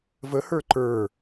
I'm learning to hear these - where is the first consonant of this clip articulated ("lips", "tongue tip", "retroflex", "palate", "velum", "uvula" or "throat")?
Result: lips